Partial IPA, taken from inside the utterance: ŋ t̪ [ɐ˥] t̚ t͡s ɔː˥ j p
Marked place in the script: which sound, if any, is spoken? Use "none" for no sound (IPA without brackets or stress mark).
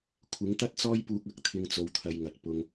ɐ˥